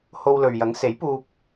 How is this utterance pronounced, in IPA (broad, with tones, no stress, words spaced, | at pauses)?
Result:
ho˧wlɵ˨ɥjɐ˨˥ŋ se˨˥jpuː˧p̚